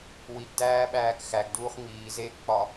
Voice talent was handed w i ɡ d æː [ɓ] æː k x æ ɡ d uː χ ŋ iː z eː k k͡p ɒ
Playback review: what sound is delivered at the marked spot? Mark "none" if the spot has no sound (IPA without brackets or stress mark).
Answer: ɓ